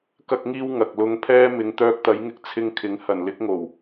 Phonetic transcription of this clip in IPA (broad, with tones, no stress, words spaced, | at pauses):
kɐ˧k̚ŋiː˧w ŋɐ˨k̚lʊ˧ŋpʰɛː˥ mɪ˨˧ŋt̪œː˧k̚t̪ɐ˨˥jŋɪ˧k̚ t͡sʰɪ˧ŋkʰɪ˨˥ŋ hɐ˨˩nlɪ˧k̚ŋo˨˩w